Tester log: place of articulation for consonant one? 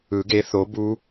velar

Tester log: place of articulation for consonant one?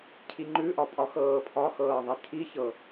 palatal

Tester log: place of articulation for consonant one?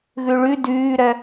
velar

